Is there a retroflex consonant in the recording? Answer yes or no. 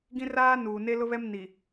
no